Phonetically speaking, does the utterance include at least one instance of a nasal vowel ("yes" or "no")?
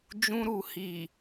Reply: yes